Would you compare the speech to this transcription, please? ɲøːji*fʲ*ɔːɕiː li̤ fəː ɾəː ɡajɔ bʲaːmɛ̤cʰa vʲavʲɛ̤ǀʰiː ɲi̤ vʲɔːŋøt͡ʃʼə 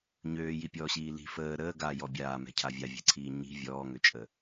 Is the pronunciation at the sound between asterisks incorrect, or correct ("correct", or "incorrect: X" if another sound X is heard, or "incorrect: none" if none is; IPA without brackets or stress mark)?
incorrect: pʲ